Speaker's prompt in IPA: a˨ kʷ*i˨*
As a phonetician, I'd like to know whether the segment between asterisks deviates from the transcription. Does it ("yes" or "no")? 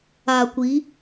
yes